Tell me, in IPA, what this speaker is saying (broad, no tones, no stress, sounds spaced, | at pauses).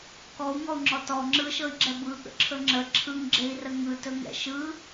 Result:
k ɔ u̯ ŋ ɔ u̯ ŋ͡ǁ ɔ t ɔ ŋ͡ǁ ɯ ʃ ɤ i̯ ɡ͡ǁ ɛ b ɯ ɠ ə̰ ǁʰ ɵ ŋ͡ǁ ə ǁʰ ɯ ŋ ɡ͡ǁ e i̯ r ə ŋ ɯ t ɵ ŋ ɛ̰ ʃ ɯ